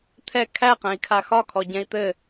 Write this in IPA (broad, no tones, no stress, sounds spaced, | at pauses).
t̪ʰ ɛ kʰ æ q ɛ̃ i̯ kʰ a x ɒ kʰ ɔ ɟ ɛ̃ i̯ t̪ ɘ